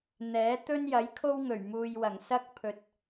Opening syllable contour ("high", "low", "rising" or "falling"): rising